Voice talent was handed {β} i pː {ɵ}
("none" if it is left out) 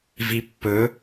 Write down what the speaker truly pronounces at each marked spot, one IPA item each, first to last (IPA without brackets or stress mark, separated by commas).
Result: v, ɵ